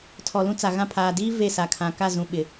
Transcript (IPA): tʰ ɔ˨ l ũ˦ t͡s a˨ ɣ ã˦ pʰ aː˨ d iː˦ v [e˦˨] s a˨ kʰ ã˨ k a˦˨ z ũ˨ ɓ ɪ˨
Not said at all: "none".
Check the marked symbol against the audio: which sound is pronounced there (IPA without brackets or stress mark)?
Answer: e˦˨